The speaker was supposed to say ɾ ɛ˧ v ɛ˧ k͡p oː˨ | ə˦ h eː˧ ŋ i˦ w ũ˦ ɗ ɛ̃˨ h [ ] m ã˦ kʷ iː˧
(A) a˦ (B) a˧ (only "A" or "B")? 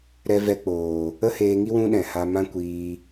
B